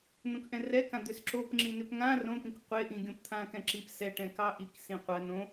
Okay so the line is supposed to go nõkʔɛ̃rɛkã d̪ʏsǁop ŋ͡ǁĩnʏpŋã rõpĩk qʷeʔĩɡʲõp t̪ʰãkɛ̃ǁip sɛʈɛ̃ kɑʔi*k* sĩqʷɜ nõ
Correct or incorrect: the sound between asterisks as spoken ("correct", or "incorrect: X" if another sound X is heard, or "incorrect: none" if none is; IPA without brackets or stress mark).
correct